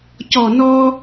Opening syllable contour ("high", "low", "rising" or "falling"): low